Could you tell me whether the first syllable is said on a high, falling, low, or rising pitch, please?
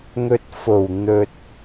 low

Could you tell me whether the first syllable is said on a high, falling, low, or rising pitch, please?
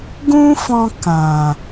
high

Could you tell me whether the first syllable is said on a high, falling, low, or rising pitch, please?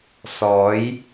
rising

